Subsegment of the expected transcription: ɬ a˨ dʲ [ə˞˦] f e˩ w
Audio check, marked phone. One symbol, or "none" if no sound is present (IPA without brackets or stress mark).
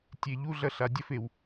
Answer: ɐ˦